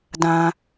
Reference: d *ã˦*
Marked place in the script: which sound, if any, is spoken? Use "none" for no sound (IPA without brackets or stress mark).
ã˦